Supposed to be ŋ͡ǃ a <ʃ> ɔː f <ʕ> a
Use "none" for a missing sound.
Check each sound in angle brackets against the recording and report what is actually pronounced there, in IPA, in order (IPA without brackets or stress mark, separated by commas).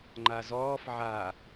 z, ʕ